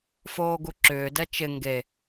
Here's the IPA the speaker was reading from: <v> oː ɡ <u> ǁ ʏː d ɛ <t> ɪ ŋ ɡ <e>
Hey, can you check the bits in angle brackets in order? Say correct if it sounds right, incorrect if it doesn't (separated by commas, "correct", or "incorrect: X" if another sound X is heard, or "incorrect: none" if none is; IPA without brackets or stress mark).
incorrect: f, correct, incorrect: t͡ʃ, correct